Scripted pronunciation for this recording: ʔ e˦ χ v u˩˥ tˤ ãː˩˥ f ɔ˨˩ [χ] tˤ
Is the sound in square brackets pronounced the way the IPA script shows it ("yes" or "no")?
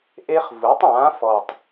no